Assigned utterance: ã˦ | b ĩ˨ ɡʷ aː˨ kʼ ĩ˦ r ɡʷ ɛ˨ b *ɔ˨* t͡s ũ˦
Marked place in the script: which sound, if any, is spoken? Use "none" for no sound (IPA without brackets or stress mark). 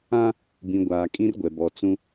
ɔ˨